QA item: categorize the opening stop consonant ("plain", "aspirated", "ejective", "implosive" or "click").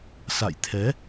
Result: aspirated